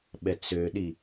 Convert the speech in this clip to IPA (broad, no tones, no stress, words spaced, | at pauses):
ɓɛt͡søɗi